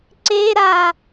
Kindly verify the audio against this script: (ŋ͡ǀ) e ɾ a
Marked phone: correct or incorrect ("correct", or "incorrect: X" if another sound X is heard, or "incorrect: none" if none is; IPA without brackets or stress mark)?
incorrect: ǀ